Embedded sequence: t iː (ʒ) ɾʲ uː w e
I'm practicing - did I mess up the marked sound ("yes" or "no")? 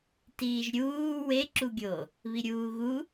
no